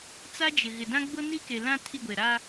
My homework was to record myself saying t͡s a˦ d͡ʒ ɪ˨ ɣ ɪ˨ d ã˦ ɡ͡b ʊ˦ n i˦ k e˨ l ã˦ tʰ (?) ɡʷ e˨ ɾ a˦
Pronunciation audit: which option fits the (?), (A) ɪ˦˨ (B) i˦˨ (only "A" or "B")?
B